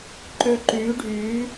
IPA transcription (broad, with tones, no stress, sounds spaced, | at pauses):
ǃ ø˧ ǃ yː˨˦ ɖʱ yː˨˦